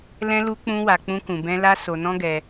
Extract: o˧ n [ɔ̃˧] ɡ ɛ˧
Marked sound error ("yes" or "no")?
yes